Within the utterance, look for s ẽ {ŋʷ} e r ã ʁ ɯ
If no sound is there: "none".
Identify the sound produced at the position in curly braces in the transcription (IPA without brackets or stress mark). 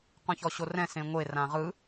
ŋʷ